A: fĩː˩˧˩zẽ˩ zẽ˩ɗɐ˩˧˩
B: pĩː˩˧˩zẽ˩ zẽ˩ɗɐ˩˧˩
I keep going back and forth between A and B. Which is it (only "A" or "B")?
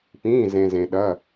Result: B